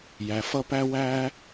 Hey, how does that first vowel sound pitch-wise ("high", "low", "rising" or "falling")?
low